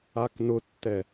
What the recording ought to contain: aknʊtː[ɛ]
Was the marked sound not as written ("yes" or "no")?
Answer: no